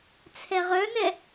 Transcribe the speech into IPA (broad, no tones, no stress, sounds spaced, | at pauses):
t͡sʰ ɛ ʁ œ n ɛ